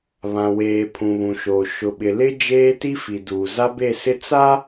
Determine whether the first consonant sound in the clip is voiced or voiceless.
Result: voiced